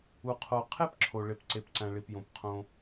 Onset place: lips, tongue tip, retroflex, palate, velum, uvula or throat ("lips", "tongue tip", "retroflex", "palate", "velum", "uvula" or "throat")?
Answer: uvula